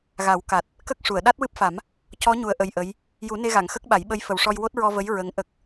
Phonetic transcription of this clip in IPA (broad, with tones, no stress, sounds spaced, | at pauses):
ɣ a˨˩˦ w k a˨˩ t̚ | k ə˦˥ k̚ ʂ u˨˩˨ ə̯ ɗ a˦˥ t̚ w ɨ˦˥ p̚ f a˨˩˦ m | c ɔ˧˥ ɲ u˨˩ ə̯ ʔ ə˨˩ j ʔ ə˧˥ j | j u˨˩˦ n e˧ ɣ a˨˩˨ ŋ x ə˦˥ k̚ ɓ a˨˩˦ j ɓ ə˧˥ j f ə˨˩ w ʂ ɔ˧ j w o˦˥ t̚ ɹ ɔ˧ v ə˧˥ j ɹ ə˧˥ ŋ ʔ ə˦˥ k̚